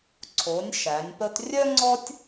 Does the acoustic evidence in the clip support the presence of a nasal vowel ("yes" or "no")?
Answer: no